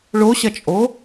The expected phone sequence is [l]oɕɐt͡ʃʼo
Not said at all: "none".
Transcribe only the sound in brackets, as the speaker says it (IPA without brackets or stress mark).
ɭ